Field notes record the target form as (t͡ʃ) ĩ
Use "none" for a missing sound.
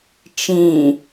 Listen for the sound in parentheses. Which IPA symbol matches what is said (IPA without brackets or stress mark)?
t͡ʃ